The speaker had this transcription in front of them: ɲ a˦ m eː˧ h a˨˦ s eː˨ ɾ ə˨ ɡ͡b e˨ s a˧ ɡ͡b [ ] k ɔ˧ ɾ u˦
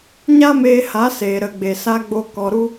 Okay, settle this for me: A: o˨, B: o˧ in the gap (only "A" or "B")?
B